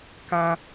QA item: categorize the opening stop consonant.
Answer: plain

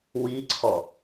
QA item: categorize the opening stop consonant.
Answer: click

